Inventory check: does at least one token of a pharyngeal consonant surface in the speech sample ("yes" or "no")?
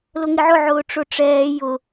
yes